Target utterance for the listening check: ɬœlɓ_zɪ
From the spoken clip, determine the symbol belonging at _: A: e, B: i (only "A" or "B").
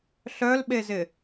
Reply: A